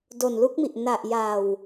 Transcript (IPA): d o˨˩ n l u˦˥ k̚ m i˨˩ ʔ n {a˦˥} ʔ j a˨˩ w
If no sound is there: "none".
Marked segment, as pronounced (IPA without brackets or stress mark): a˨˩